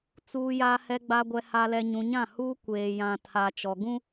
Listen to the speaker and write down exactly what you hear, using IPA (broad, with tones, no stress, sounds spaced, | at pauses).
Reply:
t͡s uː˨ j a˨ h ɛ˨ ɡ͡b a˨ ɡʷ ɛ˨ h a˨ l ɛ˨ ɲ ũ˨ ɲ ã˦˨ h u˦ kʷ eː˨ j ã˨ tʰ a˨ t͡ʃ ɔ˨ ɡ ũ˦